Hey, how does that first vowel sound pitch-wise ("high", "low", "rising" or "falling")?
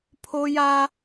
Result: high